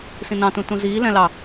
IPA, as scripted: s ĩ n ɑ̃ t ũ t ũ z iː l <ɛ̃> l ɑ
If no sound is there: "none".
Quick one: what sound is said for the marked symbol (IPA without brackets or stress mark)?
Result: ɛ̃